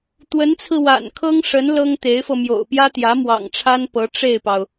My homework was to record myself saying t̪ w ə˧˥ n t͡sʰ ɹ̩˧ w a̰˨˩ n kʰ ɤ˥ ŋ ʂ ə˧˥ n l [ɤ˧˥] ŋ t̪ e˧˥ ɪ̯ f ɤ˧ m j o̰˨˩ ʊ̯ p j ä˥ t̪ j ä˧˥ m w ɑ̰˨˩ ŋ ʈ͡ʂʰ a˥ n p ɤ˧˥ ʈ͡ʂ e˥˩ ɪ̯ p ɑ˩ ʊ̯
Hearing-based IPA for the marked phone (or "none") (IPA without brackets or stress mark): ɤ˥